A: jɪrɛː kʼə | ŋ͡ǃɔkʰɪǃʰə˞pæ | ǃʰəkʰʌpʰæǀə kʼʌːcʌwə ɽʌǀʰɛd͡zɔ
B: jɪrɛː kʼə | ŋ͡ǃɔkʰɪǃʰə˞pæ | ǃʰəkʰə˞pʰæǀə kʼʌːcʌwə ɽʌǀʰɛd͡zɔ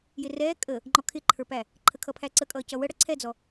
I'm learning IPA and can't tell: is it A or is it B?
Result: A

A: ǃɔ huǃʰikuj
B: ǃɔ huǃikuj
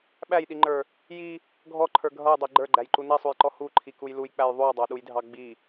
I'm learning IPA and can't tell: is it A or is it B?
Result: A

